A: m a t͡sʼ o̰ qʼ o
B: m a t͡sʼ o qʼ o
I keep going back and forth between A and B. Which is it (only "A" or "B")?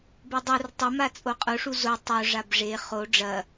B